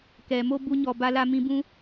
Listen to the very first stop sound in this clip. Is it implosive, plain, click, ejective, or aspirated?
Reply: plain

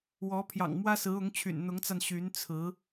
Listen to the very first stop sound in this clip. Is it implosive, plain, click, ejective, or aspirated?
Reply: aspirated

